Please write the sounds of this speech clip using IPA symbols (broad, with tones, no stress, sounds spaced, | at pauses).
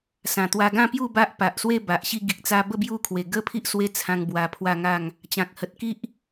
s ã˨˩ t̪ w a˧ ɡ ã˥˧ p j u˥˧ b a˦ ʔ p a˨ ʔ s w e˥˧ b a˨ ʔ ɕ i˥˧ ɡ i˨ k̚ t͡s a˧ b ə˥˧ b j u˥˧ kʰ w e˨˩ ɡ ə˦ pʰ i˦ ʔ s w e˦ t͡sʰ ã˧ ŋ b w a˧ pʰ w a˥˧ ŋ a˥˧ ŋ | t͡ɕ ã˨ k̚ h ə˨ t̚ k i˦ ʔ